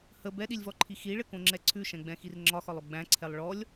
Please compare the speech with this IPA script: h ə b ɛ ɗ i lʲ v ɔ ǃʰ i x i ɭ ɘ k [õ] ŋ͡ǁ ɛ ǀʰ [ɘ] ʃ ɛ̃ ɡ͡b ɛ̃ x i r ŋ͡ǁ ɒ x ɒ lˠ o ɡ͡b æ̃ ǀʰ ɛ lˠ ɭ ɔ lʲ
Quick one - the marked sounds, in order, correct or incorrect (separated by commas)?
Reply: correct, incorrect